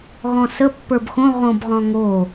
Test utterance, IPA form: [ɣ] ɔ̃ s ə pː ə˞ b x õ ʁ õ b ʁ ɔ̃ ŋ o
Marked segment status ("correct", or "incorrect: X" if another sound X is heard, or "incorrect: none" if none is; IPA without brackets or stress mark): correct